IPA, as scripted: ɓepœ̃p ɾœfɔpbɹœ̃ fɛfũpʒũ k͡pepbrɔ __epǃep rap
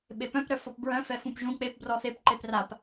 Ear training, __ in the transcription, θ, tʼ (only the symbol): θ